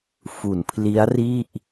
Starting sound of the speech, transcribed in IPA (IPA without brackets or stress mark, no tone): f